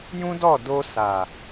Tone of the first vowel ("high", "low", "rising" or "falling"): high